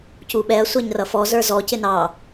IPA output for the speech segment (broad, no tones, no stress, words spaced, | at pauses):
cuɓɛɐ̯ sʷæɲrʌfɔ zə˞zɔ cɪnɑ